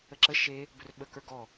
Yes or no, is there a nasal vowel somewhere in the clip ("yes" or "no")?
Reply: no